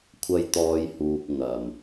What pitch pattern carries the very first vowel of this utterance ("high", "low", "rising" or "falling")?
high